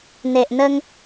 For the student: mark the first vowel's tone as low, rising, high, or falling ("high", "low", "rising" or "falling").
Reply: low